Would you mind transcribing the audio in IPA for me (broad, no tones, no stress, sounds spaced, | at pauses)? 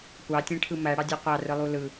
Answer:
kʷ ɑ tʲ ẽ ʈʰ ɯ m æ ɽ ɑ dʲ u qʷ ɑ r ɯ lˠ u l ɯ